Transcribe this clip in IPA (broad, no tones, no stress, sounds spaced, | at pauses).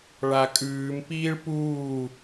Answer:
ɭ a kʼ ʉː m p iː ɭ p uː